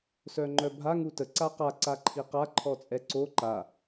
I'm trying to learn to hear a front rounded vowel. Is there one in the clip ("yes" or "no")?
yes